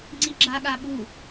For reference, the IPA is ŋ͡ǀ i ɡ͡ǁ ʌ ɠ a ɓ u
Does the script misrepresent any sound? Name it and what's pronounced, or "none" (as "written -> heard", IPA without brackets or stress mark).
ʌ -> a